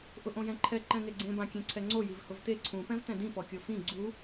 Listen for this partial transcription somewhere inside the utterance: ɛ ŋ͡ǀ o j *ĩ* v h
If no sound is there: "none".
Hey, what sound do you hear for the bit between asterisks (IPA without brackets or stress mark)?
i